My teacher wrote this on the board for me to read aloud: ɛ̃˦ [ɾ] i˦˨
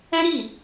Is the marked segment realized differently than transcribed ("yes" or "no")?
no